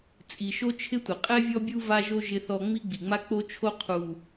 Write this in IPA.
t͡sʼ i˨ ʃ o˦ t͡ʃʰ ɪ˦ tʷ ɪ˨ qʼ ɛ˦ vʲ ɔ˦ bʲ u˦ v a˦ ʒ o˦ ʒ ɪ˦ θ ɔ˦ ŋ͡m i˦ ɡ͡b i˨ ŋ͡m a˦ k͡p o˦ t͡ʃʰ o˦ qʰ u˨

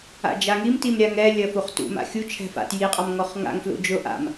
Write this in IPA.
a̰ d͡ʒ a ŋ i m t i m ɾʲ a ŋ ɛ lʲ ɐ f u χ t ṵ m a̰ xʲ u t͡ʃʰ ɛ̤ f a̰ t j i qʼ a m ŋ ɔ χ ŋ a̰ ŋ f l ṵ d͡ʒ ʊ ʔ a̰ m

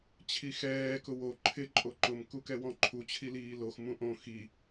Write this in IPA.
t͡ɕʰ i x ɛː k ʊ w o ǃʰ ɪ ǃʼ o ǃ ʊ m k u k ɛ w ɔ̃ ǃʰ u t͡ɕʰ i l iː l o x m ũ ʔ õ x i

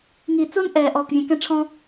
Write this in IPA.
ŋ i˨ t͡s ʊː˦ n ʔ ɛː˨ ʔ ɔː˨ k vʲ ɛ̃˨ k ɛ̃˧ ʈ͡ʂʰ ɔ̃˦

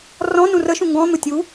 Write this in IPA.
r ɔ̃ n ũ r ə ʃ ũ ŋ ɡ ɔ̃ n̪ ʊ tʲ u

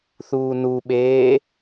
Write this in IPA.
θ uː n u ɓ eː

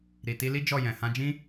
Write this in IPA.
ɾ i˨ t i˧ l i˦ d͡ʒ ɔ˦˨ j ɛ̃˨ h ã˧ d͡ʒ ĩ˦

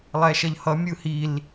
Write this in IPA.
lˠ ɛ ʃ ʌ ʎ h ʌ mʲ ɯ h i l

